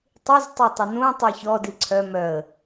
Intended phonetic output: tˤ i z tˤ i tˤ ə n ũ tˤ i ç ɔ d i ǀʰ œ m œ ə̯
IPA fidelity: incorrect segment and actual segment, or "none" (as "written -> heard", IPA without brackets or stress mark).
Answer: none